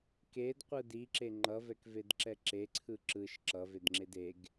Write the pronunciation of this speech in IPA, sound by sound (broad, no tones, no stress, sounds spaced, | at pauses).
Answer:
k e d qʷ ɯ d i ǁ e ŋ͡ǃ ʌ v ɛ k v e d ǁ ɛ ǁ e ǀʰ ɯ ǁ ɯ ʃ ǁ ʌ v e d ŋ͡ǁ e d e ɡ